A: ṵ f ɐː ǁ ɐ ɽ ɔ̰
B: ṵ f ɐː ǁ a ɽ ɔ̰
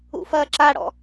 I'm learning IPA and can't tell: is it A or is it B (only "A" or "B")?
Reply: B